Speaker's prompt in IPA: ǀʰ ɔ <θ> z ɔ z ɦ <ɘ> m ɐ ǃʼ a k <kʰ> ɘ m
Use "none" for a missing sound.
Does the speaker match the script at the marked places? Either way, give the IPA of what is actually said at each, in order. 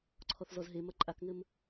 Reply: θ, e, ŋ

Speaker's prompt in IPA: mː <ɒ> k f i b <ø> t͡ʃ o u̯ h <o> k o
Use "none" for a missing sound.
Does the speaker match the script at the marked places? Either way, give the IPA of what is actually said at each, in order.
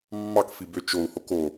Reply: ɑ, ø, o

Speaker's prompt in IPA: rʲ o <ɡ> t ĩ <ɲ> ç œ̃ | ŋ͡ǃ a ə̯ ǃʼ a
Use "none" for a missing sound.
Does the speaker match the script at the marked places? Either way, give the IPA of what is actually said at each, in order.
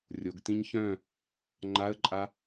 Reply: ɡ, ɲ

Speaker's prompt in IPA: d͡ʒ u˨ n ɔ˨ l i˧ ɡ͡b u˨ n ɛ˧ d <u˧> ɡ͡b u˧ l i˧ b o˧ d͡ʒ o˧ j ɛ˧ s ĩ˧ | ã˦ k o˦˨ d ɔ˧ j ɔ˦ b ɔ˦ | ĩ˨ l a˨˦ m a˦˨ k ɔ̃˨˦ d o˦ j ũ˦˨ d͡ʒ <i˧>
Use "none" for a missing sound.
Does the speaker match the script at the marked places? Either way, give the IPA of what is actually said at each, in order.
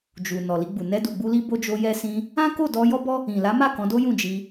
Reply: u˨, i˧

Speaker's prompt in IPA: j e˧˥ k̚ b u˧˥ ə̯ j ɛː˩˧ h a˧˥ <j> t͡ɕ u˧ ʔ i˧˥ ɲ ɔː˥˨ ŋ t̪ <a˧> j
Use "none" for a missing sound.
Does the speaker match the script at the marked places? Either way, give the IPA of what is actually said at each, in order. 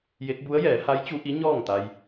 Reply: j, a˧

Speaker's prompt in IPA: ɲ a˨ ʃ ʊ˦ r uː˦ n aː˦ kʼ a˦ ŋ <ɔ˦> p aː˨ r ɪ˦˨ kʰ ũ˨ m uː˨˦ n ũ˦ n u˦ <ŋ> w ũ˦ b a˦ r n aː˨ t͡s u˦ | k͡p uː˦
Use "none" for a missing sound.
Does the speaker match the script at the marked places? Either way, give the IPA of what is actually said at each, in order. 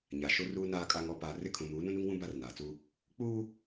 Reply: ɔ˦, ŋ

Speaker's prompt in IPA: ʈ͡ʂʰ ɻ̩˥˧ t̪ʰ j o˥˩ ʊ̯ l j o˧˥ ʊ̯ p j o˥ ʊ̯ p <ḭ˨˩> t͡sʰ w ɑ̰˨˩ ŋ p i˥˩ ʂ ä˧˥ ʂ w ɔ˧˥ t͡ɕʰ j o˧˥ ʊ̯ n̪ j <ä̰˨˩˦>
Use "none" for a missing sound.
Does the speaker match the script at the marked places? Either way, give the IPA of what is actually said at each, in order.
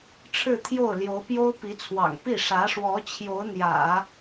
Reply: i˧˥, ä̰˨˩˦

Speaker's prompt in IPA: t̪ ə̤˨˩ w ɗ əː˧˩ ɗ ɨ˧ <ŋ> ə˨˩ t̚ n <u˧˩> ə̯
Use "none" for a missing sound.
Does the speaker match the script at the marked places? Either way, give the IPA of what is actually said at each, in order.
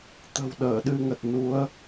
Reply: ŋ, u˨˦

